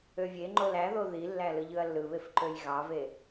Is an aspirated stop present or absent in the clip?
absent